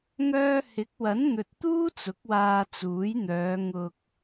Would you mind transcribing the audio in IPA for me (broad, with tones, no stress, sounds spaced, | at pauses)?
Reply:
ŋ œː˧ h ɪ˨˥ k̚ w ɐ˨˥ n n̪ ɵ˨ t̚ t̪ uː˥ t͡s ʊ˨˥ k̚ w aː˧ t͡s uː˨˥ j n̪ œː˨˧ ŋ ʊ˨ k̚